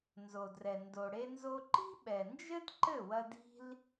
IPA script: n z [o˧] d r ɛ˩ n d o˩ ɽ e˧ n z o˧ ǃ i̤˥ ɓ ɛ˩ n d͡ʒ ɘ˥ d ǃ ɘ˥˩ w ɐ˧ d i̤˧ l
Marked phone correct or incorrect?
incorrect